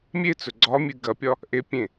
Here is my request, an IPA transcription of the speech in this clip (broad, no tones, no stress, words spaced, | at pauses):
mʲet͡sɵ ɡ͡ǀɒmʲɨ ɡɐpʲɒ | ʔepʲẽ